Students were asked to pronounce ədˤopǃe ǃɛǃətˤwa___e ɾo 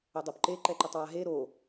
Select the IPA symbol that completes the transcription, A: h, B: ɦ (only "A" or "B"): B